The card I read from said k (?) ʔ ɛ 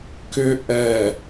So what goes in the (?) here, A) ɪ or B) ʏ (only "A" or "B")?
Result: B